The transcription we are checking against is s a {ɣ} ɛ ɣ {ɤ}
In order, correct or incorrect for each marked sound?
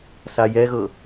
incorrect: j, correct

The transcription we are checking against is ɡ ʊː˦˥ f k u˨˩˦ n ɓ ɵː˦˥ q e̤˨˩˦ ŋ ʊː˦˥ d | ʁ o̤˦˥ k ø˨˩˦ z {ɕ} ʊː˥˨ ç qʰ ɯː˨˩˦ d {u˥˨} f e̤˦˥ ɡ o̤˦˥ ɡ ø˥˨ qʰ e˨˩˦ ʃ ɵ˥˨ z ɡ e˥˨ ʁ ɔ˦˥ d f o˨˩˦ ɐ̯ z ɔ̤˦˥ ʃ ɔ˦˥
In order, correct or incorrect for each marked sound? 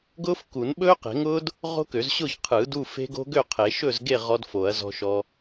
correct, correct

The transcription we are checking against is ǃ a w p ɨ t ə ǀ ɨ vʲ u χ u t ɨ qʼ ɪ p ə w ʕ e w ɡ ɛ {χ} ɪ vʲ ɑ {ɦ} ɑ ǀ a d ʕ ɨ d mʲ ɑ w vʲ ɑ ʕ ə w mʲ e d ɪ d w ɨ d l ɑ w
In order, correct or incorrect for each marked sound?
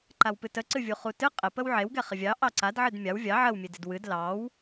correct, incorrect: ʔ

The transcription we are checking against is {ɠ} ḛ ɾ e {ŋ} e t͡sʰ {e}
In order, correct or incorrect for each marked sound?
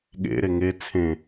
correct, correct, incorrect: ẽ

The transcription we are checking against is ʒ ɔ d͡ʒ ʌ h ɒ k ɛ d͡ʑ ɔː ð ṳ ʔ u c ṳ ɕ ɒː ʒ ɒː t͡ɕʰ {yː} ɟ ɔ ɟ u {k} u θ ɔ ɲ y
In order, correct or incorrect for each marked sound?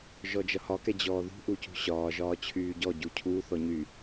correct, incorrect: cʰ

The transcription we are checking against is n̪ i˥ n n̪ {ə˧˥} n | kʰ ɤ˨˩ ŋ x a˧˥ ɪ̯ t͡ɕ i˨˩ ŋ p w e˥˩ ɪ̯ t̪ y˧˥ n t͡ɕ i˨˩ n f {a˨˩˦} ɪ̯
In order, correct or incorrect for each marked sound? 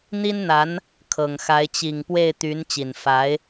incorrect: a˧˥, incorrect: a˧˥

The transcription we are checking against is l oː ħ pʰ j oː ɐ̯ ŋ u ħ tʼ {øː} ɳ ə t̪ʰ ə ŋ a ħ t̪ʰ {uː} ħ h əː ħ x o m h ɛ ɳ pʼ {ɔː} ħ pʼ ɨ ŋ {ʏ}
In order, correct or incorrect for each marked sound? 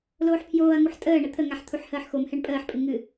incorrect: əː, incorrect: u, incorrect: əː, incorrect: ɨ

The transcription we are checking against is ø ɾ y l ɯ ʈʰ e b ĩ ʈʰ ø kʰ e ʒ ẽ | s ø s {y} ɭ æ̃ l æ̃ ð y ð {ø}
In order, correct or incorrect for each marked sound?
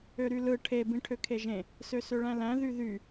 incorrect: ø, incorrect: y

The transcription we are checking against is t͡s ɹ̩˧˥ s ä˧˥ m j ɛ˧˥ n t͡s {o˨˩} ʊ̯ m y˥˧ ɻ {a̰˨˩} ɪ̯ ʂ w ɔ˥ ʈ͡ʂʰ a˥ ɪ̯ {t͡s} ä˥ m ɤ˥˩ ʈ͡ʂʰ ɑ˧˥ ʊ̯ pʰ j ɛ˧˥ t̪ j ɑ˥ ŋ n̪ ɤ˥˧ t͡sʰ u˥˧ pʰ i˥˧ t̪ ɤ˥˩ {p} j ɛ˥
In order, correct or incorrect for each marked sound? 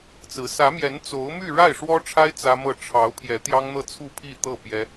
incorrect: o˧˥, incorrect: a˥˩, correct, correct

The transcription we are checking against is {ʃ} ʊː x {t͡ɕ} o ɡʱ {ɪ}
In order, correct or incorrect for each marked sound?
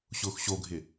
incorrect: ɕ, incorrect: ɕ, correct

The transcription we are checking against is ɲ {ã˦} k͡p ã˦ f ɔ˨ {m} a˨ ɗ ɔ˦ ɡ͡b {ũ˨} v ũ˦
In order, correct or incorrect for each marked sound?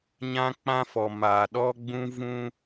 correct, correct, incorrect: ũ˦

